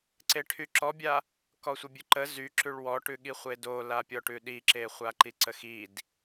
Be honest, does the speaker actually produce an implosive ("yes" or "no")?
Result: yes